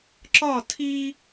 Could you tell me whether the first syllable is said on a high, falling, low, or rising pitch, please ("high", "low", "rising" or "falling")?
falling